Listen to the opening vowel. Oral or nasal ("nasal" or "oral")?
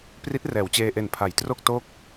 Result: oral